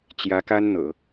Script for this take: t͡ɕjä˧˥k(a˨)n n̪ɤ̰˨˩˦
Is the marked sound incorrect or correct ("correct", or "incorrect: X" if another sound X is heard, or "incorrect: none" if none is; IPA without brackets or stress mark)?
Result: incorrect: a˥